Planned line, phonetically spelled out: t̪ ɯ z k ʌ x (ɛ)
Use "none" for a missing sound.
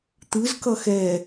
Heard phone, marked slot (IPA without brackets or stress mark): ɛ